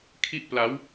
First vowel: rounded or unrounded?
unrounded